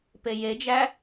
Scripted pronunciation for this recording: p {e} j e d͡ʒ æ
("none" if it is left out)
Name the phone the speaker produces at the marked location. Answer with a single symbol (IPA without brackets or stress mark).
e